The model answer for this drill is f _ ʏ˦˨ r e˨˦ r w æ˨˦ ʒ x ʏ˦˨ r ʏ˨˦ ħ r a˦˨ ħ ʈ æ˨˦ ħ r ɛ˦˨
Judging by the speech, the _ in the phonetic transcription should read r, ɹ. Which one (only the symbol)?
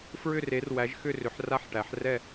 ɹ